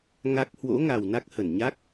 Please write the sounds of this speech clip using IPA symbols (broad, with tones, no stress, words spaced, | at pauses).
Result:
ŋa˦˥k̚ hwo̰˧˥ŋa˨˩w na˦˥k̚hə˧˩nɲa˦˥k̚